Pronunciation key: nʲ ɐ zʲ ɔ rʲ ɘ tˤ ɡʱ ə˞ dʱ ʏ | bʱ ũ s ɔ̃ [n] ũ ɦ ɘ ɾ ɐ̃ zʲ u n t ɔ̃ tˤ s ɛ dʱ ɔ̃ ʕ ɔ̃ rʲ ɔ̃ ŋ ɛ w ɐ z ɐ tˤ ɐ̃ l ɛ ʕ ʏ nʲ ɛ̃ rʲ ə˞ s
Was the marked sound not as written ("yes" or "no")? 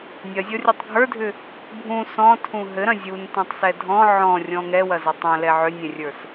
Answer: yes